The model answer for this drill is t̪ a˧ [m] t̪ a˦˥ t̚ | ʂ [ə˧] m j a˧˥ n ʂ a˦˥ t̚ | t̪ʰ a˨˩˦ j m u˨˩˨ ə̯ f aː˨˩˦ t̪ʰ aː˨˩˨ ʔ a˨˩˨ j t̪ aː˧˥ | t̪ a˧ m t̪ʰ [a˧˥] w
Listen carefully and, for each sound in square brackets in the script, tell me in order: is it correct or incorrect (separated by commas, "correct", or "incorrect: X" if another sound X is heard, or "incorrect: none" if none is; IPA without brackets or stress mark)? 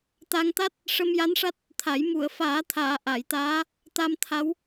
incorrect: ŋ, correct, correct